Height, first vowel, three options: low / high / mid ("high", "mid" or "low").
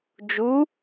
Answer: high